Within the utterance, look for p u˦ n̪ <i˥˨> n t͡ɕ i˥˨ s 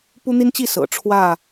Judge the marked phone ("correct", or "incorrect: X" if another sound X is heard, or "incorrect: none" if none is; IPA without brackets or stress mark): incorrect: i˦